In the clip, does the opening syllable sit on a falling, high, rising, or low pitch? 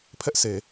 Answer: high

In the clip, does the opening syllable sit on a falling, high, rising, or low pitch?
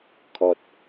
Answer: low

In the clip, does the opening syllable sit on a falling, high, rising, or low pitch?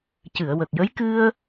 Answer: low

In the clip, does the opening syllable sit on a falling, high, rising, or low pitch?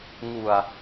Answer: low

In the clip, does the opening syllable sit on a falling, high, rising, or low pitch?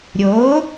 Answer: rising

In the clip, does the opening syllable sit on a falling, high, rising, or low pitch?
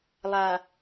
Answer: low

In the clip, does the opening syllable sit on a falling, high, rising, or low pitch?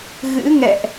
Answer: rising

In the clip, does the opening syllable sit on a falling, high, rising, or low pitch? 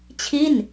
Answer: falling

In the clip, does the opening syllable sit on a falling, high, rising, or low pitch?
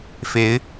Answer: rising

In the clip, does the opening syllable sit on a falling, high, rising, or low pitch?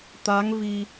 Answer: rising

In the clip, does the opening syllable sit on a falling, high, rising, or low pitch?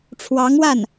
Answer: rising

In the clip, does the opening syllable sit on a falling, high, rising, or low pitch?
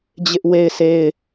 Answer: high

